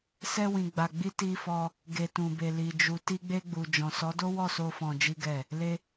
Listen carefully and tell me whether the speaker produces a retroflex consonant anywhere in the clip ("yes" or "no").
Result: no